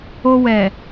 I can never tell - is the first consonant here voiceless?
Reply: no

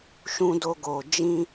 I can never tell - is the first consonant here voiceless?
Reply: yes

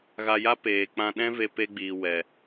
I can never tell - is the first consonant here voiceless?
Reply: no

